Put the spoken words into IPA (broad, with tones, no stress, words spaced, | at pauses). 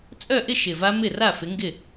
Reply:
t͡sʼœ˥˧ʔɪ˥˧ ʃɪ˨˩va˦˥ mɪ˥˩ra˥˩fɪ˨˦ŋɡɪ˥˩